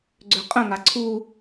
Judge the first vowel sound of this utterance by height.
mid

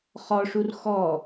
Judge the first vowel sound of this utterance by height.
mid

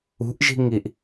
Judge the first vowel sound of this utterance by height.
high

